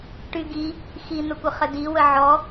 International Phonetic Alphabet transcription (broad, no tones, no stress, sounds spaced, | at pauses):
ʈ y ɡ i | x i n̪ ə kʷ ə χ ə d i w ə ʕ ɔ